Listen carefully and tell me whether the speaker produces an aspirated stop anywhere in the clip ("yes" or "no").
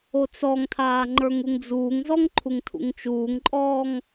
yes